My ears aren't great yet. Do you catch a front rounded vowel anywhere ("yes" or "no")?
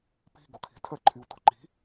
yes